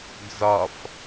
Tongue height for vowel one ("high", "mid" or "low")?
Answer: low